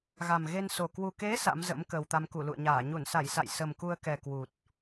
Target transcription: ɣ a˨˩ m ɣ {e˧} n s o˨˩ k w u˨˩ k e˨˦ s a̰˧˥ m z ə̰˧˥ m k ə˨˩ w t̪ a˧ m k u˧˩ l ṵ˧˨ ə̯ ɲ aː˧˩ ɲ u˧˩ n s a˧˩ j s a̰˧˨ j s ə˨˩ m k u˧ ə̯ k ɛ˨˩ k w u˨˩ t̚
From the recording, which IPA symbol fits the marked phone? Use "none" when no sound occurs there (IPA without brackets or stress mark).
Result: e˧